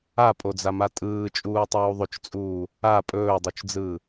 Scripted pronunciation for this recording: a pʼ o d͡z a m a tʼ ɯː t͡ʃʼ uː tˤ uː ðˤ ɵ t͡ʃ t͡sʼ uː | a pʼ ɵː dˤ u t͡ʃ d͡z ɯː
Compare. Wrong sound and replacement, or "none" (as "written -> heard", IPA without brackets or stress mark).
none